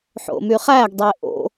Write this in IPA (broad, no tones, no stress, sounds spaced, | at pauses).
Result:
ħ o̰ m y χ æ ɡ dˤ e ʔ o̰